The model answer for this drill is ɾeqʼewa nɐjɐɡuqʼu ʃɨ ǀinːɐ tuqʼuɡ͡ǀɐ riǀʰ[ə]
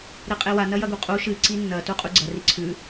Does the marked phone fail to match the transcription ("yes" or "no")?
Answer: yes